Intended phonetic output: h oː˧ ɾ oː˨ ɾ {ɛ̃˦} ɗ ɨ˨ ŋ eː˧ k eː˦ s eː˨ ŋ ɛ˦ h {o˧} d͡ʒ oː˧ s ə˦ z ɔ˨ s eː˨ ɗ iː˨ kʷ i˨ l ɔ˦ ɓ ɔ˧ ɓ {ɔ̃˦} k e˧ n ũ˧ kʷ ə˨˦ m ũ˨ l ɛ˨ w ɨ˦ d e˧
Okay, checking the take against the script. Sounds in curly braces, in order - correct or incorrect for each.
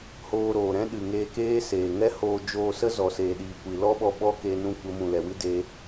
correct, incorrect, incorrect

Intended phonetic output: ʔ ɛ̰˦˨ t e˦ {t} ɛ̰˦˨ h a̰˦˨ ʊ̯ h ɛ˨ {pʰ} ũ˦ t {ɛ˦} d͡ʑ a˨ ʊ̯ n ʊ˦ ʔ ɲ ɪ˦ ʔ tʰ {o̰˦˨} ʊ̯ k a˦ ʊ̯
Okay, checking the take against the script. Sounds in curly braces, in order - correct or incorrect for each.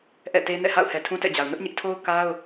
incorrect, incorrect, incorrect, incorrect

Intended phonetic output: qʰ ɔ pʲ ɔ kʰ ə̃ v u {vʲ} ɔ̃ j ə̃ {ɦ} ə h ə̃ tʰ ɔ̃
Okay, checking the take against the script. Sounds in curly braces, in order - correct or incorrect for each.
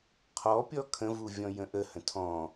correct, incorrect

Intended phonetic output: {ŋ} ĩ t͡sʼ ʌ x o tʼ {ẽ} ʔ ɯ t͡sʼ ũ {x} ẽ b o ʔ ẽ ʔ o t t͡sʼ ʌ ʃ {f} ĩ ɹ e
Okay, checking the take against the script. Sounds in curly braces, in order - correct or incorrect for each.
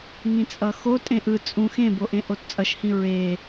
correct, correct, correct, incorrect

